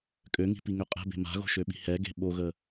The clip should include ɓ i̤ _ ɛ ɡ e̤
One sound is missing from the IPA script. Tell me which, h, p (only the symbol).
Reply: h